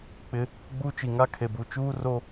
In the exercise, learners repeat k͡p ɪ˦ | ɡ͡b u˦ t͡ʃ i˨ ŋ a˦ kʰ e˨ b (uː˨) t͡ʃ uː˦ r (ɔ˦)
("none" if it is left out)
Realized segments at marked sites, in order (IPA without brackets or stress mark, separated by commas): u˨, o˦